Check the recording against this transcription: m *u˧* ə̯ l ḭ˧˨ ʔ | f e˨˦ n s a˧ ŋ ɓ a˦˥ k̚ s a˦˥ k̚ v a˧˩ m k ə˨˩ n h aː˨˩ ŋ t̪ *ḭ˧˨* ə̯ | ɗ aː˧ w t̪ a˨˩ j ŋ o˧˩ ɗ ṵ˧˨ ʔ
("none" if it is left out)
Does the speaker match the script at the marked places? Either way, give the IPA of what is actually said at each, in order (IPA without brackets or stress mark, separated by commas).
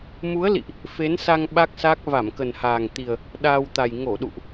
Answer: u˨˦, i˨˩